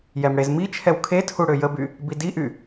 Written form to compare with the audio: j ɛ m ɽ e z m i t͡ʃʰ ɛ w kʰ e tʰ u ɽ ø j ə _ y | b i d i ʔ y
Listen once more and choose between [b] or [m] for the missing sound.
b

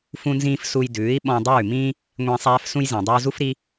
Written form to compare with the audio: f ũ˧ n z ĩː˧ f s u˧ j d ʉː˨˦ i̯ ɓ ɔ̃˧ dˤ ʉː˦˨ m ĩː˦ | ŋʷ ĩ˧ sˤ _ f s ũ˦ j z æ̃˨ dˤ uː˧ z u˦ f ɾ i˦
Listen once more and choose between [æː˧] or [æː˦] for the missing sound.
æː˦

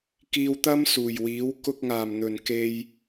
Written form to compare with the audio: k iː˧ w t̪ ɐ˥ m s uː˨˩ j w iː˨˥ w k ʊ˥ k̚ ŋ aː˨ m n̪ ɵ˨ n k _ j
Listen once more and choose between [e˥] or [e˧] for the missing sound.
e˧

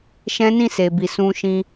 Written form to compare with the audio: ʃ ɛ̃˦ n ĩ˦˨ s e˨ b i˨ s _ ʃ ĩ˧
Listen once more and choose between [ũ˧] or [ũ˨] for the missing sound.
ũ˧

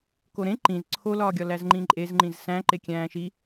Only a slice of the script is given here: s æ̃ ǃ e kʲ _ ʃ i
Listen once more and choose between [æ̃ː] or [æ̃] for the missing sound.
æ̃ː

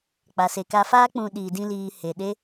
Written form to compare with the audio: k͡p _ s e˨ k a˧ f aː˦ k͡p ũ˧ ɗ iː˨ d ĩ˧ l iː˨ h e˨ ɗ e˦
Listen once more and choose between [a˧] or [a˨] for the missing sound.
a˨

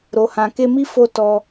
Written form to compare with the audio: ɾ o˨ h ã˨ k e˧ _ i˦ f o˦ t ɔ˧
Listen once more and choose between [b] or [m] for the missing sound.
m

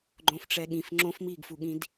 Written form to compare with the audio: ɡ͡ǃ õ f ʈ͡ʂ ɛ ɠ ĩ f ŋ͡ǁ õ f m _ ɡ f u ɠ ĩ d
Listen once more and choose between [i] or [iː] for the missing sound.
iː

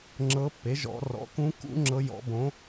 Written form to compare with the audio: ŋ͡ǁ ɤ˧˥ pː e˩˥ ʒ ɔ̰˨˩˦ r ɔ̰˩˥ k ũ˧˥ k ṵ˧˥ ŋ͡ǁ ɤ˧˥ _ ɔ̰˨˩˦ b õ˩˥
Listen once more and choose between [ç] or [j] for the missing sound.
j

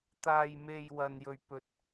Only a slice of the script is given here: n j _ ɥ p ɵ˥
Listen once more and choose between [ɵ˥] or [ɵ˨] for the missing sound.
ɵ˥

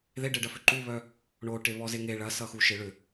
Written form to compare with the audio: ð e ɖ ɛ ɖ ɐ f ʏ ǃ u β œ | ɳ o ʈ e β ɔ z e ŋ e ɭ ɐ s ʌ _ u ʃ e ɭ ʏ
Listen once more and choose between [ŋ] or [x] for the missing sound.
x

